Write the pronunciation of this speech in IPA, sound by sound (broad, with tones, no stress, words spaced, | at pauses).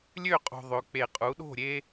lʲø˥˩qʼo̤˨ ðˤø˩˥k͡pe˨˩˦ qʼu˩˥ɗo̤˥˩ ɾʲe˦